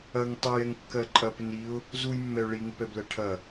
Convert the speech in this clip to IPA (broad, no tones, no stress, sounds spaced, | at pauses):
ɐ ŋ tˤ ɛ j ɛ ŋ kː ɜ ǃʼ ɐ p ɪ n i ʊ̯ | z u j mː ɛ ʊ̯ ɭ i ŋ ɪ p ɛ b l ɜ ʈʰ ɐ